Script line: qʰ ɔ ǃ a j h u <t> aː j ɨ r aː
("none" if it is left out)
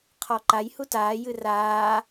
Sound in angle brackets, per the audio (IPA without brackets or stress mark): t